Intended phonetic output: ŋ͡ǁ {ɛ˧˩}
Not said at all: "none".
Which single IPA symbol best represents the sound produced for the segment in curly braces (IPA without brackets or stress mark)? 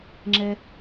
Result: ɛ˧